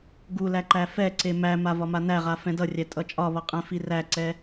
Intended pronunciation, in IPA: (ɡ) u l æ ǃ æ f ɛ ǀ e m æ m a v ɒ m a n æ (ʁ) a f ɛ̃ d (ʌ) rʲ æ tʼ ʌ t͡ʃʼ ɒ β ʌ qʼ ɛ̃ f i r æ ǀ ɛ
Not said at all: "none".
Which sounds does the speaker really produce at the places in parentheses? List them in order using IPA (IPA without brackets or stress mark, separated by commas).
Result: ɡ, ʁ, ʌ